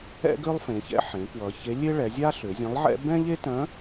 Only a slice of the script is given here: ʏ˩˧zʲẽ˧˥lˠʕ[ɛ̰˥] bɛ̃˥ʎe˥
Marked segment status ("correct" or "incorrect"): correct